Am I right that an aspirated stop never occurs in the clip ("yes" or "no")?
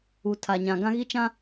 no